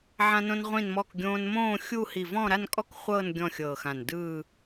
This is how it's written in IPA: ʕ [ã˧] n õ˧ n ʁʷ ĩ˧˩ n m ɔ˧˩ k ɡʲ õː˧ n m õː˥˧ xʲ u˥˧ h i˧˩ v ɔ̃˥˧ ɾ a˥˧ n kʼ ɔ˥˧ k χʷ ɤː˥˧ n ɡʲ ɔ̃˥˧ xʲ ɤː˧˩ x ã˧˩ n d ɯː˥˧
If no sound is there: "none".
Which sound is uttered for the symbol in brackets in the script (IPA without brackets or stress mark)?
ã˧